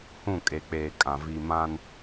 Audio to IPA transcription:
hũ˦˨kʼe˨k͡peː˨kʼã˨ vi˨mã˦n

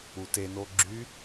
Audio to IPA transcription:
uteno ɡ͡ǁy

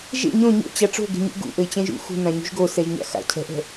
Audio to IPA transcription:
ʒḛ ɲõ ɲo̰t͡ɕa ʈ͡ʂo̤ɡe̤ɲṵ ɡṵʔɘɪ̯ t͡ɕɛ̃ʒṵ xṳnã ɲṳʒɡosɛʒ ɲa̰xa̰cʰɛ̤ʔɛ̤

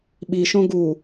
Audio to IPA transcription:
ɓiʃõ ɡu

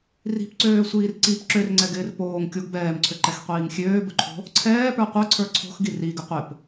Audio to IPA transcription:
ri̤pǀøːsʷiːr ǀip ǁørŋ͡ǀɛɡɪːr poːŋkʲoɡ bɛːmǀʰøǃɛxqʷiːŋ xʲøːbɵǃʰo̤ | ǀʰɛːpə˞ qʷə˞ǀʰə˞ ǀʰo̤xɡi riɡɪ qʷɪp

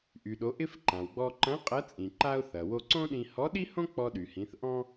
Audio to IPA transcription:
ʔy˩ɗo˩˧ ʔɪ˧f ǃã˩wɡ͡bɔ˧ ǃɐ̃˧˥ qʼɐ˧˥t͡sʼĩ˩ ǃa˧ʊ̯ θɐ˩wo˧ǀõ˥ɗĩ˧ hɔ˧˥ɗi˥hõ˥ k͡pɔ˧ɗy˩hĩ˩˧θʔɔ̃˥

